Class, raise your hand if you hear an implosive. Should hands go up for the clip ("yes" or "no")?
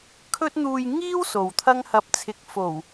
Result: no